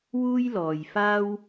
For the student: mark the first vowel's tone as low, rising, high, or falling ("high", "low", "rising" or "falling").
high